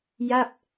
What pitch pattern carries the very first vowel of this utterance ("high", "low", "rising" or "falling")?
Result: falling